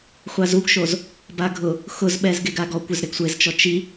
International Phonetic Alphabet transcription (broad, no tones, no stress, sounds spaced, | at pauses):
χʷ a z u ɡ ʃ o z | b a ɡʱ ʊ | x ʊ z ɓ ɛ z ɡ e ɡ a ɡ ɔ kʷ ɪ z ɾ ɪ ɡ sʷ e z t͡ʃ ɔ t͡ʃ i